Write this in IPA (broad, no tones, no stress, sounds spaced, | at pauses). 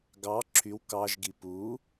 ɡ ɑ ǁʰ y w k ɑ ʒ ɡ i p u